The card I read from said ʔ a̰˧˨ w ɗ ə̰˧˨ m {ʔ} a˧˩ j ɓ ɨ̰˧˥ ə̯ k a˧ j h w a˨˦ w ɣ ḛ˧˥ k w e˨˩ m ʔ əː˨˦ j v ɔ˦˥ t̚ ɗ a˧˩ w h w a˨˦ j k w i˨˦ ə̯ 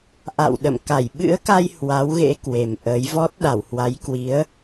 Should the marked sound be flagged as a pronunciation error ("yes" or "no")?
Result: yes